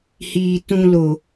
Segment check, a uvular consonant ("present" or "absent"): absent